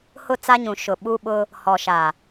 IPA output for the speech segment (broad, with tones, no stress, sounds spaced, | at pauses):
h ʊ˦˨ t͡s a˦ ɲ ũ˨ ʃ ʊ˨ ɓ u˦ ɓ ʊ˦ | h ɔ˨ ʃ a˨